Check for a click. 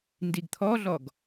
absent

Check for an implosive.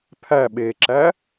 present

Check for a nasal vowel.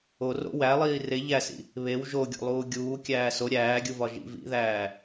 absent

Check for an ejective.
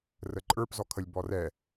present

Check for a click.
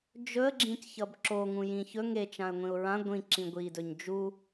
present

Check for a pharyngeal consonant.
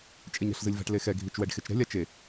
absent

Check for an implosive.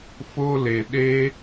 present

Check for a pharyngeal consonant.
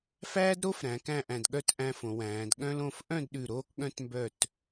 absent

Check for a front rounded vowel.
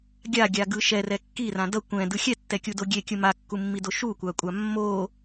absent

